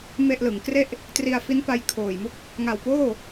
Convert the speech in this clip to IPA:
m e˥˩ ʔ l ɯ˩˦ ŋ k r e˥˩ ʔ | t r i˧ a̯ f i˦˥ n p a˧ j kʰ oː˨˩ j m u˥˩ k̚ | ŋ a˨˩ w p oː˥˩

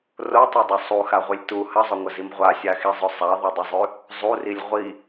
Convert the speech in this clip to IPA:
r o tˤ u dˤ ɵ sˤ u x a ʁʷ i lʲ t u h ɐ zˤ ɵ ŋʷ ɐ z i m ʁʷ a sʲ a x i zˤ ɵ sˤ a ðˤ ɐ dˤ ɵ zˤ ʉ | zˤ u r i lʲ ʁʷ i

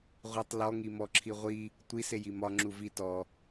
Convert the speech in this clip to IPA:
ʁʷ i tˤ l ɔ ŋ i m ɔ ǁʰ i ʁʷ i | tʷ i s e j i m ɒ ŋ͡ǁ u v i t ɔ

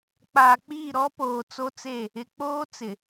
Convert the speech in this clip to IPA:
k͡p aː˨ k͡p iː˦˨ ɾ ɔ˦ p oː˨ t͡s o˦ t͡s e˦˨ | ɪ˨ k͡p oː˦ t͡s ɪ˨

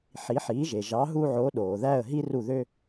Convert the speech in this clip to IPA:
ħ i˩˥ ħ iː˩˥ ʒ e˩ ʒ ɑ˩˥ ɦ u˧ ʕ o˩˥ ɗ oː˩ ð æ˥˩ ə̯ ɦ i˥ r u˥˩ ð ø˥

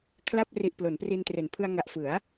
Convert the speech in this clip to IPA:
kʰ l a˥˩ p̚ r i˨˩ ʔ p l o˩˦ n p r i˧ n t r e˨˩ n pʰ ɯ˧ a̯ ŋ a˨˩ ʔ f ɯ˩˦ a̯

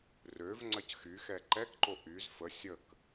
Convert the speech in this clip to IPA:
r ø v ŋ͡ǀ ɐ c x y x ɛ ǃ ɛ k ǃ o ʔ y z f ə sʲ ə k

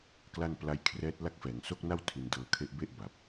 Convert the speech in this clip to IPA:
k l a˥˩ n p l a˦˥ j kʰ r ɛː˦˥ t̚ l a˦˥ k̚ f ɛː˩˦ ŋ s o˥˩ k̚ n a˥˩ w tʰ i˧ n d ɤː˧ kʰ e˦˥ ʔ b e˥˩ ʔ b a˨˩ p̚

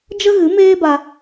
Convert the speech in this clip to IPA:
d͡ʒ ə˦ ɣ ɨ˨˦ m eː˦ b a˧

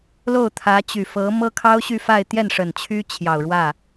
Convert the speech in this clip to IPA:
l o˥˩ ʊ̯ t̪ʰ ä˧˥ t͡ɕ y˨˩ f ɤ˧˥ m ɤ˥ kʰ ɑ˥ ʊ̯ ɕ y˥˧ f a˥˧ ɪ̯ t̪ j ɛ˥˩ n ʂ ə˨˩ n t͡ɕʰ y˥ t͡ɕʰ j ɑ˨˩ ʊ̯ ɻ w ä˥˩

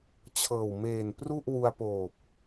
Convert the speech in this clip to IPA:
t͡ɕʰ ɤː˨˩ w m eː˨˩ n p r u˥˩ ʔ w u˧ a̯ p oː˨˩ p̚

